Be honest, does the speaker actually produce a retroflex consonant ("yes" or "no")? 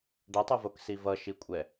yes